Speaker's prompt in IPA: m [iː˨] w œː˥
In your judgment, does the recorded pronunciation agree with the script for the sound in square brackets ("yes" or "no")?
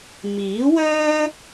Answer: no